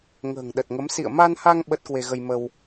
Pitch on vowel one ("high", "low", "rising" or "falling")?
low